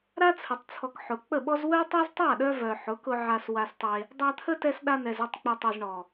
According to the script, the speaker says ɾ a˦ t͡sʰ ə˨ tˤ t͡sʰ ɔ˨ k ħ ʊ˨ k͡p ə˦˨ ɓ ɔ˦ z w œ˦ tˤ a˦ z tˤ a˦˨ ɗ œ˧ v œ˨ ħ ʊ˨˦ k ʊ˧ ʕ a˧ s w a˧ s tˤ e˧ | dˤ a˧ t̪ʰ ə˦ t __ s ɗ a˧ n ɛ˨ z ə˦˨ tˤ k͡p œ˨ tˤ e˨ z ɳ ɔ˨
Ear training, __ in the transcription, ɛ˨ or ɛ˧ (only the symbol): ɛ˧